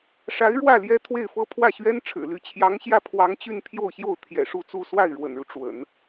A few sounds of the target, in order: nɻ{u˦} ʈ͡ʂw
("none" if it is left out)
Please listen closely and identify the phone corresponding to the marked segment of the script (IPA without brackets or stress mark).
u˦